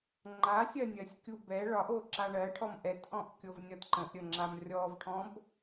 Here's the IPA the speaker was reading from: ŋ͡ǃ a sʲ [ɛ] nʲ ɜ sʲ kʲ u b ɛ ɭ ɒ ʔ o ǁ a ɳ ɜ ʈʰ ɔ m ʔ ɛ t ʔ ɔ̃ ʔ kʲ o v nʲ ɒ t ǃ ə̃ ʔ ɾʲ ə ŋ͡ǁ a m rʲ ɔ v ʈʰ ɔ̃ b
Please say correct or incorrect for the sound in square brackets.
incorrect